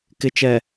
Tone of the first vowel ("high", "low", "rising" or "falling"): low